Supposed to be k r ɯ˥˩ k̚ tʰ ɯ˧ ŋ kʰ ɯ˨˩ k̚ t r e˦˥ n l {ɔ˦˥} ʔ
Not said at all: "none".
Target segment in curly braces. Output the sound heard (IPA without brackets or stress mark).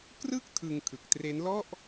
ɔ˥˩